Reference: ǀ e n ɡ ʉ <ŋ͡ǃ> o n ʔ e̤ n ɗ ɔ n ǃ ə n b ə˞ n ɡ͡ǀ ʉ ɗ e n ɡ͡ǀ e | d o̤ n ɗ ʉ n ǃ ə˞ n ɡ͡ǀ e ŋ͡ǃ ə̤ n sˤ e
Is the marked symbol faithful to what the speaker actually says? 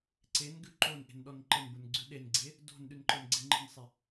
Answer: no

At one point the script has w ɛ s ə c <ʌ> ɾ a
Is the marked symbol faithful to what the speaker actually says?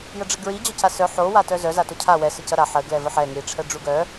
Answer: yes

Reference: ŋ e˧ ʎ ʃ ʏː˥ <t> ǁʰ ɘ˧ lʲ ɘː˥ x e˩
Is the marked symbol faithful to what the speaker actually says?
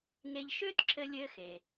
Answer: yes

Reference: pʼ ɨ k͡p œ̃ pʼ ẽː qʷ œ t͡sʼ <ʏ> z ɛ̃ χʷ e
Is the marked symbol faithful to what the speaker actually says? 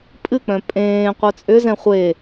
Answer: yes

